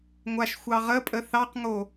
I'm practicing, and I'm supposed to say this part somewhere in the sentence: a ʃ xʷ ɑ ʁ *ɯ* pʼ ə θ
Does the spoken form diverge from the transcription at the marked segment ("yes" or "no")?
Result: yes